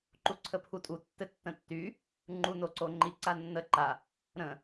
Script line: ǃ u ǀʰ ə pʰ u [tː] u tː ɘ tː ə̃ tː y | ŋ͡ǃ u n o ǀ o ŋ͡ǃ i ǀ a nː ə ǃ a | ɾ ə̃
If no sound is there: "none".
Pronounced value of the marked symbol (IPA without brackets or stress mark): tʼ